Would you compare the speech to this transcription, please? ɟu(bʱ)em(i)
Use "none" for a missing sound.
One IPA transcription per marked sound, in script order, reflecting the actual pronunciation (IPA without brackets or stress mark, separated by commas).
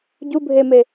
bʱ, e